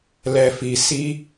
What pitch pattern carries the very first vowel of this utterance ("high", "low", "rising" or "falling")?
low